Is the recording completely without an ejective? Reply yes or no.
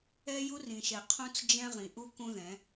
yes